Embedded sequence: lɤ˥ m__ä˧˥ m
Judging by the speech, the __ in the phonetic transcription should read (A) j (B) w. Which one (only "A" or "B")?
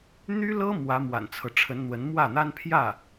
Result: B